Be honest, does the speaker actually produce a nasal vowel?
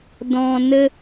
yes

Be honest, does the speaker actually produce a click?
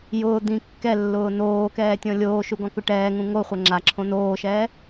yes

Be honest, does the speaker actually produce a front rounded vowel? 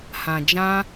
no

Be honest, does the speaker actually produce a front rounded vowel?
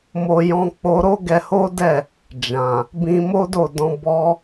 no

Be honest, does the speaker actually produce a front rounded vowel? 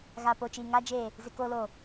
no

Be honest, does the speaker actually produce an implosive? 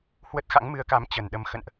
yes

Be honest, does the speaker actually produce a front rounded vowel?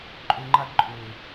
yes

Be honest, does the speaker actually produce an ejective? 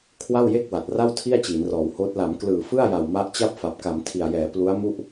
no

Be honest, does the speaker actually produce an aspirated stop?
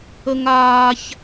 no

